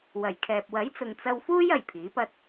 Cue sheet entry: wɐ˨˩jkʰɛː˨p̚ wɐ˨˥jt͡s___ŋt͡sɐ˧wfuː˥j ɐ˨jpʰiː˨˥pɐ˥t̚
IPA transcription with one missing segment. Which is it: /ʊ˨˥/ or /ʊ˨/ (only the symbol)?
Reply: ʊ˨